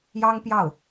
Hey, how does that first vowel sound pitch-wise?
high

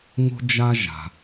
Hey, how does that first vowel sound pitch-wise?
high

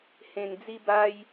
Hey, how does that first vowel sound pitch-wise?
low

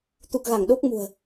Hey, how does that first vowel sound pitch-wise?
low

